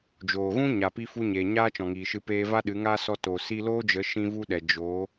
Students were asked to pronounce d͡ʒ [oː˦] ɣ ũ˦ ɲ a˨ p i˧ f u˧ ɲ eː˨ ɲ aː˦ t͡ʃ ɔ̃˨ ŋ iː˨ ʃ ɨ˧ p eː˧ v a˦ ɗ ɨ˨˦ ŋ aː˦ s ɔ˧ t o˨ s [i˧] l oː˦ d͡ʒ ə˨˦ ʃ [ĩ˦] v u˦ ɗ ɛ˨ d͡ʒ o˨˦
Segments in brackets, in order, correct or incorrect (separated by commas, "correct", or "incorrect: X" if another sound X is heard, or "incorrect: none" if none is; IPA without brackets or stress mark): incorrect: oː˨, correct, correct